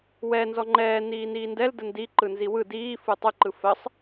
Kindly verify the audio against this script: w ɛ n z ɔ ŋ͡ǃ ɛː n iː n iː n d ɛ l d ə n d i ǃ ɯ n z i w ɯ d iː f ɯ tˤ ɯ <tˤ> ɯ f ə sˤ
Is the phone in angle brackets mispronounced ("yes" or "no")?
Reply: yes